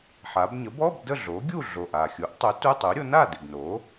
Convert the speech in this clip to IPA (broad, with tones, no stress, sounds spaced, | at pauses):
ħ a˩˧ b ɲ ə˩˥ b ɔ˧˥˧ b d ə˥˨ ɮ o˩˥ ɡʲ u˥˨ ɮ o˨˩ ʔ a˨˩ xʲ u˩˥ ʔ tˤ u˩˥ t u˧˥˧ tˤ u˩˥ ɾʲ o˩˥ n a˥˨ d ɪ˨˩ ɡ n o˩˥